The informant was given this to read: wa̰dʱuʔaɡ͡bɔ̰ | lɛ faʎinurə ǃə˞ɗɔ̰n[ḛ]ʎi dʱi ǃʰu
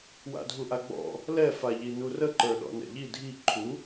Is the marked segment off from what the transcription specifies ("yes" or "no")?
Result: yes